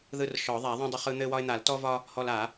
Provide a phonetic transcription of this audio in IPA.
ð ɯ˦ r ʃ ɔ˨˩˦ ðˤ a˨˩˦ ðˤ ũ˦ dˤ ʊ˦ χ ɯ˦ n̪ ɘ˦ w ɒ˦ ɪ̯ n̪ a˨˩˦ l t ɔ˦ v ɒ˦ | h ɔ˦ l a˨˩˦

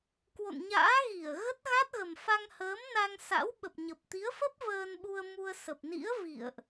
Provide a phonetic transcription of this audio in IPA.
k w o̰˧˨ n ɲ a̰ː˧˥ ɣ i˧˩ ə̯ ɣ ə˦˥ t̚ ɣ a˦˥ t̚ ɣ ə˨˩ m f a˧ ŋ h əː˨˦ m n a˧ ŋ s a̰˧˥ w ɓ ə˨˩ p̚ ɲ ə˨˩ p̚ t̪ i˨˦ ə̯ f ə˦˥ p̚ v əː˧ n ɓ u˧ ə̯ m u˧ ə̯ s ə˨˩ p̚ n ḭ˧˥ ə̯ v ḭ˧˨ ə̯ ʔ

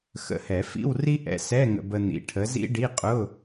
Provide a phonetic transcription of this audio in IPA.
x ə̰˨˥ h ɛ˨˩˦ f ḭ˧˥˧ w r i˥ ʔ ɛ̰˧ s ɛ˧˥˧ ŋ ə̰˧ b ə˧ n̪ ḭ˨˥ ʈʰ ə˨˥ z ḭ˥ ɖ i˧˥˧ qʼ ʊ˧˥˧

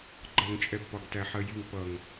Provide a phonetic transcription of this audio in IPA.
ɡ͡ǃ ʌ ŋ t͡ʃʼ ɛ b p ɒ ɡ t æ ħ ɜ j i ŋ p ʌ ŋ

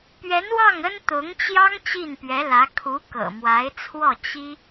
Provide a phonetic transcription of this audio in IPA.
p ɥ ɛ˧˥ n w ɑ˥˩ ŋ ə˥ n t̪ ʊ˧˥ ŋ t͡ɕ j ɑ˥ ŋ t͡ɕ i˥˩ n p ɥ ɛ˧˥ l ä˧˥ kʰ u˧˥ k ɤ̰˨˩ m w a˧˥ ɪ̯ t͡sʰ w ɔ˥˩ t͡ɕ i˥

